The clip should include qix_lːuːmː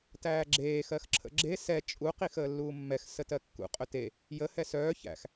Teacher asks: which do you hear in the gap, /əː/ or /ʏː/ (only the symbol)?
əː